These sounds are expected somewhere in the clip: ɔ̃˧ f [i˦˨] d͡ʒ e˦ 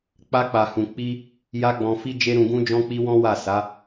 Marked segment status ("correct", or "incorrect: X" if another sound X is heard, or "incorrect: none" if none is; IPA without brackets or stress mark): incorrect: i˦